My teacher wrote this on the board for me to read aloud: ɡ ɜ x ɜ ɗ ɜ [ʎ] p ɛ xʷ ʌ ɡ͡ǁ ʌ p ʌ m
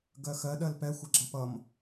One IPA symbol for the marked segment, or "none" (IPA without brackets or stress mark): l